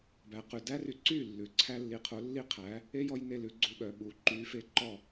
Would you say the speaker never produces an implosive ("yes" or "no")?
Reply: no